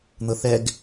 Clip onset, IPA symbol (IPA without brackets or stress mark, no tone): n̪